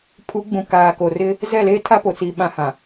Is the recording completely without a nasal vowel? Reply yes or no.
no